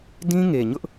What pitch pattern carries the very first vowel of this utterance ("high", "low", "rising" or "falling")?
high